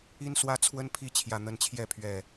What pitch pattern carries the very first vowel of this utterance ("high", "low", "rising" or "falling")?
high